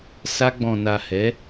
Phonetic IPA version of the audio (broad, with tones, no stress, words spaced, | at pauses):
sa˧ɡ͡bɔ̃˨na˨hɛ˨˦